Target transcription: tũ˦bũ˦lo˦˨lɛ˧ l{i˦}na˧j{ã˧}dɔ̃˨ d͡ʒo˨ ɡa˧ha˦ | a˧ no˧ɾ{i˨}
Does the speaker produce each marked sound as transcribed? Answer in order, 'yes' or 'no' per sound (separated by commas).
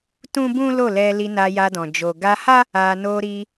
no, no, no